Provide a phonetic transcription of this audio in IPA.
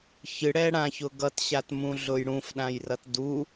ç ɨ ɽ ɛ ɽ ã ç ʊ ɡ ʌ t ɕ a t m ũ ɮ ʊ j ɽ ũ f ɗ ã j r ʌ t d u

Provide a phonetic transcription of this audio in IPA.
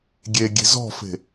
ɡʲ e ɡʲ e̤ z ɔ̤ f e̤

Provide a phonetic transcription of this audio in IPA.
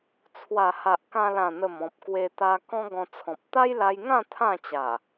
t͡sʰ w a˨˩ h a˨ ʔ k ã˧ l ã˨˩ n̪ ə˨˩ m ɔ̃˨ p̚ k w e˧ t̪ a˧ k ɔ̃˦ ɡ ɔ̃˧ t͡sʰ ɔ̃˨ p̚ t̪ a˦ j l a˧ j ŋ ã˥˧ t̪ʰ ã˥˧ t͡ɕ a˨˩

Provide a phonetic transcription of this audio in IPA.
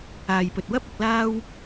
aː˨ j p ɵ˨ t̚ w ɐ˥ p̚ ɐ˧ k̚ l aː˥ w

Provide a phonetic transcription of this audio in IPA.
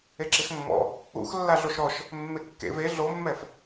e ǁ ɪ x mː ɔ̰ | ṵ x lː a ɮ o ʃ ɾ ɔ ʃ | mː e kː ḛ v e ɮ o mː ɛ f

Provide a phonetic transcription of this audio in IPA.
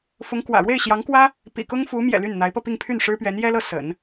f ʊ˧˥ ŋ k w ä̰˨˩ ɻ w e˥˩ ɪ̯ ɕ j ɑ˧˥ ŋ k w ä˥ | p ḭ˨˩ k ʊ˥ ŋ f u˧˥ m j ɛ̰˨˩ l y˥˩ n n̪ a˧˥ ɪ̯ p ɤ˥˧ p i˥˧ ŋ pʰ y˥˩ n ʂ ɻ̩˥ p ɥ ɛ˧˥ n j ɛ˥ l ɤ˥˩ s ə̰˨˩˦ n

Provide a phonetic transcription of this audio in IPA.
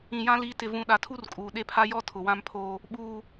ĩ˨ j ã˦ l i˨˦ t ɪ˨ v ũ˨ ɗ a˨ tʰ u˦ r kʼ uː˨ ɗ e˦ pʰ a˦ j ɔ˦ tʰ ʊ˨ w ã˦ m pʰ oː˦ | ɓ uː˦

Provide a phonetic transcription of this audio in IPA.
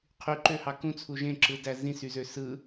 qʰ y ǃ ø h ɑ k ũ t͡sʰ u ʒ ẽ ǁ ɯ d æ z ĩ s y z ø s ɯ

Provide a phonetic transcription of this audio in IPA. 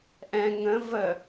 ʔ ɛ̃ ŋ ə̃ v ə

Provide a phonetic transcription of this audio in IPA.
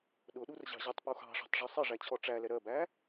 ɗ ʊ ɗ u r ʑ ɑ̤ ʑ ʌ tˤ p u x ɑ̤ ʂ ɑ̤ tˤ ʐ u sˤ ɪ ʐ æ t͡ɕʰ ɔ ʈ͡ʂ æ l ɛ ɾ ɜ b æ

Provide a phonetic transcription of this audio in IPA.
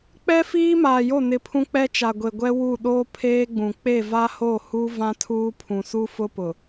k͡p ɛ˦ f iː˦ m aː˨ j o˦˨ n ɪ˨ pʰ ũ˦ k͡p ɛ˦ t͡ʃ a˨ ɡʷ e˨ ɡʷ ɛ˦ w u˦˨ ɗ oː˦ pʰ eː˦ ɡ͡b ũ˨ k͡p e˦˨ v a˦ h o˦˨ h u˦ v ã˦ tʰ uː˦ pʰ ũ˨ s u˦ f ʊ˦ p ʊ˨

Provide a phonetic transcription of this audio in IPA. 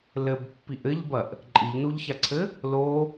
l ɘ b pː i ʔ ɘ ʎ b ɐ ʔ | ǃʼ i ʎ n u ʎ ç a ǀʰ ɘ | l o

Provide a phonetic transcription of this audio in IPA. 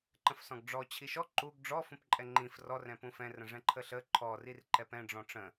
ǃ ə̃ f s ɔ̃ ɡ ɖ͡ʐ ɔ t͡ɕʰ i ʃ ɔ ǃ u ɡ ɖ͡ʐ ɔ f ũ p ǃʼ ɛ ŋ͡ǃ ĩ f r ɔ r ɛ̃ p ũ f ɛ̃ r ə̃ ʐ ɛ̃ ǃʰ ə ɬ ə ǃʰ ɔ r i r ǃ ɛ p ɛ̃ ɖ͡ʐ ɔ̃ ʈ͡ʂ ə̃

